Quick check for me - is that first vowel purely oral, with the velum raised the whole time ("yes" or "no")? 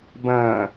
no